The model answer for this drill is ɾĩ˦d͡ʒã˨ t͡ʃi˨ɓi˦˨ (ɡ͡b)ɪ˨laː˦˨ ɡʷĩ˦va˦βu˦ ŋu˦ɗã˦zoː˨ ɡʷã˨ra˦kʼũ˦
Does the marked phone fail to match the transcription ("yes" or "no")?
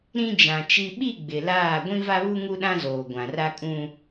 no